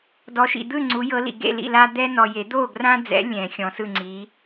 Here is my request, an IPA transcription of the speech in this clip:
d ɔ˨˦ ʃ ḭ˨ d̪ ɯ˥˨ ŋ͡ǀ u˨˦ j ɤ˨˦ l ḭ˨ ɡ ḛ˥˨ l ḭ˥˨ l a˦ d̪ ɛ˦ n ɔ˨ j e˨˩˦ d̪ o˥˨ ɡ r ã˦ d͡z ɛ̰˨˦ lʲ ɛ̃˨˩˦ xʲ ɔ̃˨˦ s ɯ˥˨ ŋ͡ǀ i˨˦

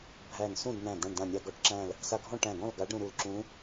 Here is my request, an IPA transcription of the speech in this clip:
bʱ æ˧˩ n s ũ˥˨ d n æ̃˧˩ d̪ ã˧˩ ɳ d ã˧˩ nʲ a˧ ɡ ɔ˧˥ ʈ ǁ æ̃˥˨ l | s a˧ ɡʱ ɔ̃˥˨ ʈ æ̃˧˩ ɡ ɔ̃˥˨ l ɡ a˧˥ ɖ ɾ ũ˧ ɾ u˧˩ l ǁ ũ˧˥

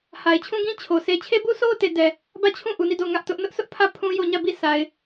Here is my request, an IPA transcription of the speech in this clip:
h a˨ ɪ̯ t͡ɕʰ ũ˦ ɡ ĩ˦ t͡ɕʰ o˨ s e˦ t͡ɕʰ e˦ b u˦ s o˦ ʊ̯ t e˨ d ɛ˨ | b ä˦˨ t͡ɕʰ ũ˦˨ ʔ u˨ n i˦˨ d o˦˨ ʊ̯ ŋ ä˦ ʔ t ʊ˦ ʔ n ʊ˦ ʔ s ʊ˦ ʔ pʰ ä˦˨ pʰ ũ˦ j o˦˨ ɲ ä˦˨ b i˦˨ s a˨ ɪ̯

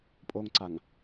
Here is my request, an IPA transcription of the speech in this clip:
pʼ o ŋ ǀ a ŋ

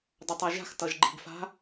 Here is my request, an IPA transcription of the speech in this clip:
dˤ ʌ tˤ a ʒ a̤ x t ʌ ʒ ɡ͡ǃ i̤ ɡ f a̤

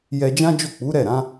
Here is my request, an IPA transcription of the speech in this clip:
j ɛ˧ d͡ʒ ã˦ d͡ʒ o˦˨ k͡p u˨˦ ɾ ɛ˦˨ ɾ ã˨˦

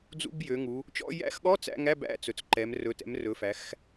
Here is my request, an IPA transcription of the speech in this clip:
d͡z ṵ˧˥˧ b j ø˩˧ ŋ u˩˧ | t͡ʃ ɔ̰˧˥˧ j æ̰˧˥˧ x ɠ ɔ˧˥˧ t͡s æ̰˧˥˧ ŋ æ˧˥˧ b æ̰˧˥˧ t͡s ɵ˩˧ t͡s ǃ ɛ˩˧ m r ɵ˩˧ t ɛ̰˩˧ m r ɵ˩˧ f æ˩˧ x

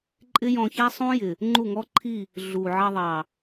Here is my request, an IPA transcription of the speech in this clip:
ǃʼ ɪ˦ j ɔ̃˧ ç æ˦ sˤ ũ˦ j ɪ˨ | ŋ͡ǃ u˦˨ ŋ ɔ˦ ǃʰ i˦˨ | ɮ u˨ ʕ ɑ˧ ðˤ ɑ˨

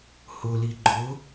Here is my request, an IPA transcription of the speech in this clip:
h ʊ l i ɡ͡ǃ ʊ

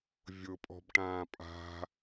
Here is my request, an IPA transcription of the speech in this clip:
vʲ ʊ pʼ ɔ̤ b ʈ ãː pʼ a̤

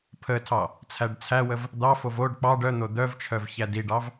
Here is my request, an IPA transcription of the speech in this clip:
pʰ ə tʰ ɑ | t͡sʰ æ ɖ t͡sʰ æ w ə v | d̪ ɑ f o v o ɖ k͡p ɑ ɖ œ n̪ o d̪ œ v t͡ʃʰ œ v ç æ d i ɖ ɑ v

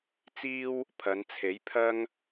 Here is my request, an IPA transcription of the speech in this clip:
t͡s iː˥ w | pʰ ɐ˨˧ n t͡sʰ e˨˥ j pʰ ɐ˥ ŋ

